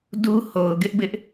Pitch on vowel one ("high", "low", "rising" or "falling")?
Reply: high